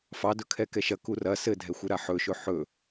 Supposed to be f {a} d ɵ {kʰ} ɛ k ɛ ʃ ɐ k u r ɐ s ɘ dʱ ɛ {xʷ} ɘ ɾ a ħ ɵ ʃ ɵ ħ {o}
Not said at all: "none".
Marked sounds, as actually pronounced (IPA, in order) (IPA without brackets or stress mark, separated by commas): ɑ, kʰ, xʷ, ɵ